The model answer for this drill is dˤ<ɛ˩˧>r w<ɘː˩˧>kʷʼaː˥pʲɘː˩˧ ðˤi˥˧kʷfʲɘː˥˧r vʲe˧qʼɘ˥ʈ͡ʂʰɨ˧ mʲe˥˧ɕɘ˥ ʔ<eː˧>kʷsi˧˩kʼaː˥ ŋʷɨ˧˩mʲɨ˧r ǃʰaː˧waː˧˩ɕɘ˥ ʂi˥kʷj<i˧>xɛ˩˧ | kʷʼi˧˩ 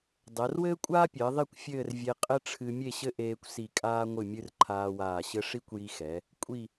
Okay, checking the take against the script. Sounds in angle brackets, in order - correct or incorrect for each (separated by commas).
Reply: correct, incorrect, correct, correct